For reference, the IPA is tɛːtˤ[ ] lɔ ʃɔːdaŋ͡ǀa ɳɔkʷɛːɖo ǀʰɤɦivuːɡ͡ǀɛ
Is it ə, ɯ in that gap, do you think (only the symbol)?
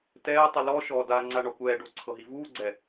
ɯ